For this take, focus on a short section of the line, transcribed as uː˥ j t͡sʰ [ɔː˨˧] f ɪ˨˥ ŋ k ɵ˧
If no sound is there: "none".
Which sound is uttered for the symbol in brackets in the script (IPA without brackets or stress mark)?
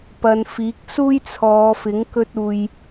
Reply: ɔː˨˧